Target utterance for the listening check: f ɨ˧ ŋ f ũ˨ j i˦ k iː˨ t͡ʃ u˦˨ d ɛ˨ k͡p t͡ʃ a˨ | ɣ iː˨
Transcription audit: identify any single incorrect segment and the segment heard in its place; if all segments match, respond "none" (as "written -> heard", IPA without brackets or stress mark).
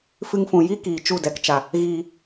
k͡p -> k